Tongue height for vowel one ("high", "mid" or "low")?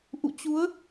high